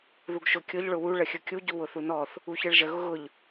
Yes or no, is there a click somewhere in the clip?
no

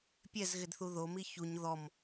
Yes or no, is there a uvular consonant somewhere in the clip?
no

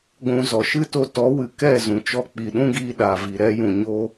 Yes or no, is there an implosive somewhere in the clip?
yes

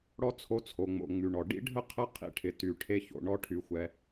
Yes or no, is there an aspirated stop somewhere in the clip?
yes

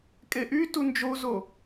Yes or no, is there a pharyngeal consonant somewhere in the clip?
no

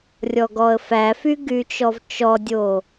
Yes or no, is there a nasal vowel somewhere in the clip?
no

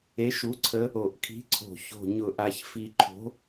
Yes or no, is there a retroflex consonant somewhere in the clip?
no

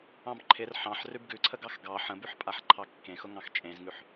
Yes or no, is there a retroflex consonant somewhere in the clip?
no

